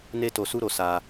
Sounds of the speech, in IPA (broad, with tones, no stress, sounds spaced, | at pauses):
n e˦ t o˧ s u˦ ɾ o˧ s a˧